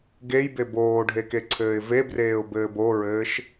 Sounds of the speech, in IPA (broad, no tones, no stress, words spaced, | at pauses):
ɡejbe boːɖʱekeǀʰɘːɪ̯ vebreːʊ̯bɘːb oɹɘːʃ